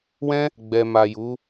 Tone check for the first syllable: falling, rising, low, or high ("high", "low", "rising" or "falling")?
high